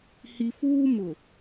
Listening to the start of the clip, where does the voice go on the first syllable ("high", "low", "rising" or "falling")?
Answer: low